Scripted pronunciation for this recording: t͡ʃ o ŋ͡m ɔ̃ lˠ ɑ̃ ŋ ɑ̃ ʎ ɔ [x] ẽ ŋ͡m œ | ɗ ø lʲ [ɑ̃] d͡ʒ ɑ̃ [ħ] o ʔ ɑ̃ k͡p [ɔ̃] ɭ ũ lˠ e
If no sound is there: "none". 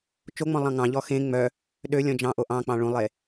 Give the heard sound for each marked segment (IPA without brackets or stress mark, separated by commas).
x, ɔ̃, ʔ, ɑ̃